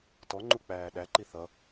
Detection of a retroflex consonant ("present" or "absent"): absent